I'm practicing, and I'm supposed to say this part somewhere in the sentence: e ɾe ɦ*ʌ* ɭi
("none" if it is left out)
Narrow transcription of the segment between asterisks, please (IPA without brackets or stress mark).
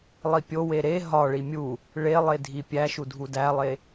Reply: ɒ